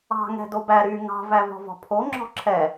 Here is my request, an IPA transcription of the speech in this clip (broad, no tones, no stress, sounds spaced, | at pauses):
ɑ̤ ŋ ɛ̤ d o b æ ɾ y ŋ ɑ̤ v æ v ɔ̤ v ɔ̤ pʰ o ŋ͡ǁ ɔ̤ ǁʰ ɛ